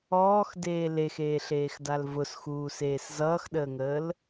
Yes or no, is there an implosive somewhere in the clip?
yes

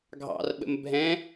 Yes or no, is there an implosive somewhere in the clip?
yes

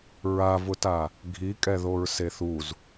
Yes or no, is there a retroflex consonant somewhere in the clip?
no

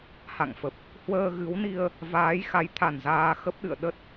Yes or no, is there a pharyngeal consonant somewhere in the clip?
no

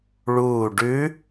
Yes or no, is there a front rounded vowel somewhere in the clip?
no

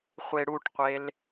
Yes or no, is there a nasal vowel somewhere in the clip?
no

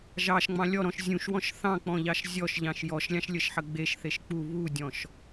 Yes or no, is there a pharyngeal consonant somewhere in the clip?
yes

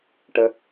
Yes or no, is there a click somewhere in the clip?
no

